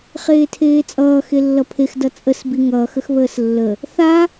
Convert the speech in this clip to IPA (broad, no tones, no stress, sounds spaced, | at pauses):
χ eː tʰ eː t͡sʼ ʌː x e lː ʌ pʰ e x d ʌ t͡sʼ ə s b i ŋ ʌː x ə x β əː s lː ə | θ a